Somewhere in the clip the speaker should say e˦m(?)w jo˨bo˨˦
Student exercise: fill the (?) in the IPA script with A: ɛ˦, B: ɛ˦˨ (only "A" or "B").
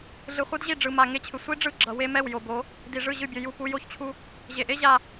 B